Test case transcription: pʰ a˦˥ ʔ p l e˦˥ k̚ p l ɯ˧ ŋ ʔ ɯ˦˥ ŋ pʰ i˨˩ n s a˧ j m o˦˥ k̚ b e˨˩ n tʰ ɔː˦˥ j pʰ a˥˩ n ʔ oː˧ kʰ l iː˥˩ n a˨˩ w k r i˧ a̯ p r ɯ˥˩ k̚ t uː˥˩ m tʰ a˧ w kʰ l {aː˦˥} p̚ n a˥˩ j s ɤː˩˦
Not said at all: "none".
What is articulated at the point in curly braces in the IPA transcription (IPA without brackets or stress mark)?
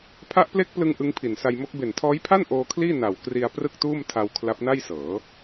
a˦˥